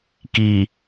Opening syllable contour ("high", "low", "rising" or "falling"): low